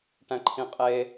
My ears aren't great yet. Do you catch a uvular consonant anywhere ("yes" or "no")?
yes